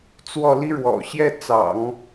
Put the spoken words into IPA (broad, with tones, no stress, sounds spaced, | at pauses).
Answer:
t͡s w ɔ˥˩ l i˥ ɻ w ɔ̰˨˩ ɕ j ɛ˥˩ t͡s ɑ̰˨˩˦ ŋ